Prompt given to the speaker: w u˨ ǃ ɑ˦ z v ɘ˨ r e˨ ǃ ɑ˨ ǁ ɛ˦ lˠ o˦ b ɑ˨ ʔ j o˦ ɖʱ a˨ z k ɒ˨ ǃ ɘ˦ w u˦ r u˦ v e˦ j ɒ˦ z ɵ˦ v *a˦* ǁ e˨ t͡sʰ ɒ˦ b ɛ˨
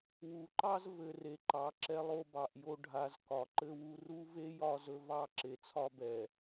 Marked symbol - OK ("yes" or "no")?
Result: no